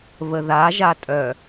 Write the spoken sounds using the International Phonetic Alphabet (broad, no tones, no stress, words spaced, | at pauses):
βəðaʒa tʼœ